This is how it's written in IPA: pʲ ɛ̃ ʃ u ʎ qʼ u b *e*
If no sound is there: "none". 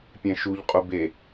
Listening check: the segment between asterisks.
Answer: e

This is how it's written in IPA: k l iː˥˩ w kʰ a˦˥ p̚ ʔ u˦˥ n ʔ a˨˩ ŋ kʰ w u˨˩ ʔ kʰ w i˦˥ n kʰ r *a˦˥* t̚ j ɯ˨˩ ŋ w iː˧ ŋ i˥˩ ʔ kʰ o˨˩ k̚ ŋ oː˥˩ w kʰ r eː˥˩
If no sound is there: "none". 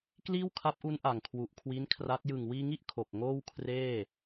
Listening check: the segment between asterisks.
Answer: a˦˥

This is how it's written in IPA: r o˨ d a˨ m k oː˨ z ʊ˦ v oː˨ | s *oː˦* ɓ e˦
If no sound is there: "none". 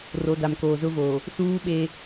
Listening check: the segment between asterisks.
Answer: uː˦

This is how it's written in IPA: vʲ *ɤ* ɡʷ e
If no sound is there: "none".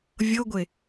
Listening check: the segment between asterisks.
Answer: ɤ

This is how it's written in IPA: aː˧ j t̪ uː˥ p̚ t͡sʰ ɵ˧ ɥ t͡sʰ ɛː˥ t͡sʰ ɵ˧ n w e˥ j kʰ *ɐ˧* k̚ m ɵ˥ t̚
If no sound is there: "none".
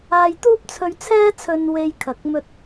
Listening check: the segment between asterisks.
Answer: ɐ˧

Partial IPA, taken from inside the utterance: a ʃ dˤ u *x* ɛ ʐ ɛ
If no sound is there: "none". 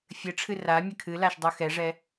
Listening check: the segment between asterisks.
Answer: x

